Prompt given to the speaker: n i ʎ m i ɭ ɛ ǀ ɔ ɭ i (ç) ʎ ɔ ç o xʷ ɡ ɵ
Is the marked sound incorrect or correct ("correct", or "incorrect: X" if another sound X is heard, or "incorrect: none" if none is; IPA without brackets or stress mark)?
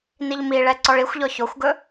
incorrect: xʷ